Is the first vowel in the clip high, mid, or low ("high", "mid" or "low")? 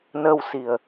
mid